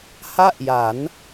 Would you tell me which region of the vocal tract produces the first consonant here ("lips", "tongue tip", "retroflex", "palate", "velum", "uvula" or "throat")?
throat